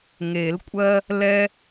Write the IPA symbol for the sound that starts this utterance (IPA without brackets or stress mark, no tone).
ŋ